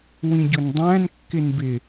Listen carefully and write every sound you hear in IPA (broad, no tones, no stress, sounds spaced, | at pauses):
w ĩ ɟ ʊ n dˤ æ̃ n kː ɪ n b ɪ